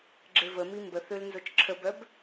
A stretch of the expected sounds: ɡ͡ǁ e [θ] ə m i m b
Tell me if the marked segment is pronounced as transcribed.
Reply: no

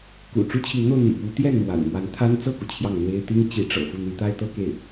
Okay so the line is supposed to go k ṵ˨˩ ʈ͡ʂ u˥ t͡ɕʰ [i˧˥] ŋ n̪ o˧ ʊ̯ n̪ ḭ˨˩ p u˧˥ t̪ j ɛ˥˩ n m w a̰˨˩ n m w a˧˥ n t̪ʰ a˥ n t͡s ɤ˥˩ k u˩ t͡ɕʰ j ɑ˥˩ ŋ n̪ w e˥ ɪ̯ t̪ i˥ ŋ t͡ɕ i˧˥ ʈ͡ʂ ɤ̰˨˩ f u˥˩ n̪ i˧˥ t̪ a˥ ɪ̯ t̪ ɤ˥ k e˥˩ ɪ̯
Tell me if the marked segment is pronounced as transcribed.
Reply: yes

